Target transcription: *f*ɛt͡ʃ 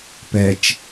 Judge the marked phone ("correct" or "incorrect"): incorrect